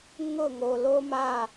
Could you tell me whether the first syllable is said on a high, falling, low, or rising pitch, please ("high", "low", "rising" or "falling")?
falling